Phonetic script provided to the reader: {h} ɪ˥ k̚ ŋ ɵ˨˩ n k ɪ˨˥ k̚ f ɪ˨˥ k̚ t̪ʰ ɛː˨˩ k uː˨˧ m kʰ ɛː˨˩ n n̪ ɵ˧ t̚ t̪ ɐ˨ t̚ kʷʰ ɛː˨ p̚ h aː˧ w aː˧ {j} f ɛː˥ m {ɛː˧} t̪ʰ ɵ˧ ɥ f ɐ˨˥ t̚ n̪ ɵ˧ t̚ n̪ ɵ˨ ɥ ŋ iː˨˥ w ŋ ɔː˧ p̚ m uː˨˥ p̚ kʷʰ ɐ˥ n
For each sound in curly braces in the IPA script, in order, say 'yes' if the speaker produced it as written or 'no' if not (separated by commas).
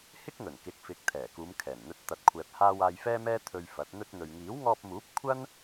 yes, yes, no